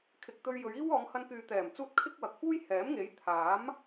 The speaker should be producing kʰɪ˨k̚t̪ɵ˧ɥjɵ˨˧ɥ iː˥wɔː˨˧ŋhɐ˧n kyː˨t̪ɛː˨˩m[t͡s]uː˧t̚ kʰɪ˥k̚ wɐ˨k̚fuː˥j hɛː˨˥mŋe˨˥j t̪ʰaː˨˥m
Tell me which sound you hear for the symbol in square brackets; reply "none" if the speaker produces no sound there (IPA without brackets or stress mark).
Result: t͡s